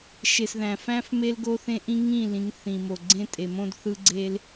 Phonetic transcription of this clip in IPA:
ʃe˨sðæ̃˨fæ̃˦f me˦lɡo˦θẽ˦ ʔĩ˦ŋĩ˦˨lĩ˨˦ŋ θĩ˨ mo˨ ɡ͡ǀẽ˦ tʼe˨mõ˦dθɯ˦ɡ͡ǀe˦l

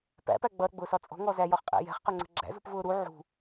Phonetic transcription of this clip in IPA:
pæ̰pæ ɡ͡bʌɾə̤ɡ͡bʊːsɒ t͡sʼɔ̤ŋɔ zæjɒχqʼæ̰ jɛ̤χqʊŋ͡ǀə̤ ɡ͡ǁæ̰zṳpvʊː ɾu ʕṳ

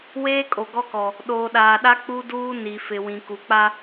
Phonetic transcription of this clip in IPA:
weː˦kʼo˨ɡɔ˦kɔ˨ | ɗoː˨ɗaː˨ɗa˦ k͡pu˦duː˦ ni˨fɪ˨ wĩ˨ku˨k͡pa˦

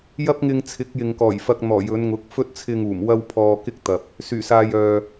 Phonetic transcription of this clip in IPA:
jɐ˥p̚ŋɪ˧ŋt͡sʰɪ˨˥k̚ jɪ˨ŋkɔː˨˩jfɐ˧k̚n̪ɔː˨˩ jɵ˨˧nŋʊ˨˥k̚fɵ˥t̚ t͡sʰɪ˧ŋuː˨˩m wɐ˥wpʰɔː˧ kɪ˥k̚t̪ɐ˨p̚ | syː˨˩saː˧jœː˨

